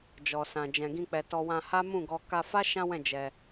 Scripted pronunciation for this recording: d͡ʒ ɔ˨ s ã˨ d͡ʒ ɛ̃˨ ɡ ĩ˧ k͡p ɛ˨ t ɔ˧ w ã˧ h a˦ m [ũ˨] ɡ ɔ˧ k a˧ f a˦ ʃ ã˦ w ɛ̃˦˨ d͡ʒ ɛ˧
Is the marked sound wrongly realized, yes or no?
yes